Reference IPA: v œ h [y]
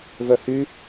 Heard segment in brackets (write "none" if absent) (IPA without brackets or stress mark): y